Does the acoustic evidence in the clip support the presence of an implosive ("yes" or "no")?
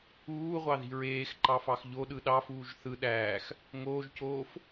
yes